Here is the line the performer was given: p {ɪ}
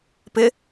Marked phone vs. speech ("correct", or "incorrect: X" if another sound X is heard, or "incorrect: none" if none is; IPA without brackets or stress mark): correct